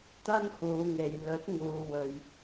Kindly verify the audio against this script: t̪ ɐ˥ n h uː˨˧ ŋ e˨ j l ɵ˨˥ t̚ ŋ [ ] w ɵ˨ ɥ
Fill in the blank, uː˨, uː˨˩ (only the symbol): uː˨